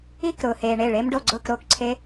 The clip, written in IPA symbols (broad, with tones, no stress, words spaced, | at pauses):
i˥˧k ɾʊː˨heː˨ɳe˥˩ ɭe˦˥mɖo˥˧ɡ͡ǀʊː˥˧k ɾoː˥˩kǀʰe˦˥